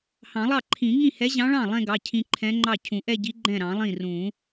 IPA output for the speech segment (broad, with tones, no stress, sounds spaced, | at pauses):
h ɑ̃˨˩˦ lˠ ɑ˥˩ ǃʰ ĩ˨˩˦ ŋ ĩ˥˩ h ɛ˧˥ ʑ ɑ̃˧˥ ɭ ɑ̃˥˩ lˠ ɛ̃˥˧ ɡ ɑ˩˧˩ cʰ ĩ˧ ǃʰ ɛ̃˧˥ ŋ͡ǃ ɑ˥˩ cʰ ũ˨˩˦ ʔ ɛ˥˧ ɟ i˧˥ ɡ͡ǃ ɛ̃˥˩ ɾ ɑ̃˨˩˦ lˠ ĩ˥˩ r ũ˨˩˦